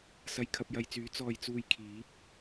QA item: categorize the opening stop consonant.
aspirated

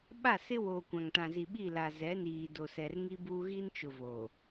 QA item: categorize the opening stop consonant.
implosive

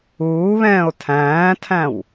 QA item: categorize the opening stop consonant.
aspirated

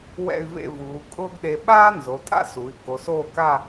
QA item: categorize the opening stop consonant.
ejective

